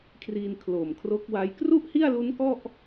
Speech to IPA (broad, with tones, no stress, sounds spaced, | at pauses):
kʰ r i˧ n kʰ l o˨˩ m kʰ r o˦˥ k̚ w a˦˥ j k r u˥˩ ʔ h i˥˩ a̯ l u˦˥ n k ɔ˥˩ ʔ